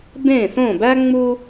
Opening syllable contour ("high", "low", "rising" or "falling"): falling